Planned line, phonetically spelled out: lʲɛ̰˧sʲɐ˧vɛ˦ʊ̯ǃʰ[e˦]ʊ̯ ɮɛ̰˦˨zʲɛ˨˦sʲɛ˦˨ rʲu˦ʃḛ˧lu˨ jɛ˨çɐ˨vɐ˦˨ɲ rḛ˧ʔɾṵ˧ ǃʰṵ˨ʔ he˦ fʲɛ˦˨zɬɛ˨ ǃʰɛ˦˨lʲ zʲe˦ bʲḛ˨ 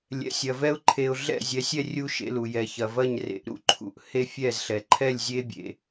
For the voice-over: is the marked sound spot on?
no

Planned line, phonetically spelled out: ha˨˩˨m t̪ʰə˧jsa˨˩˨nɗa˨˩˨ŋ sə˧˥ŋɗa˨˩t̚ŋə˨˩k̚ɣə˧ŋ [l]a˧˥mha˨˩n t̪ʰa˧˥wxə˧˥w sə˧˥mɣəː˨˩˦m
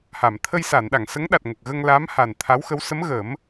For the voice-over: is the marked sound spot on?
yes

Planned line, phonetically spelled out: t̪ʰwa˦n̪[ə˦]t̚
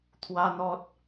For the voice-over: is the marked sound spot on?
no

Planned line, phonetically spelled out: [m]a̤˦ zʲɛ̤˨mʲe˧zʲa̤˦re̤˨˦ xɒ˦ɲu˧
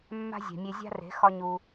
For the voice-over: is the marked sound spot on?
no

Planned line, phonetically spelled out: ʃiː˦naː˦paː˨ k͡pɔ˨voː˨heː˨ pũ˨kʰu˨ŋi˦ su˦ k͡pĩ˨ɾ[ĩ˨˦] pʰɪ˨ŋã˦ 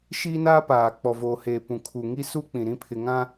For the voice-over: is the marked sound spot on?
no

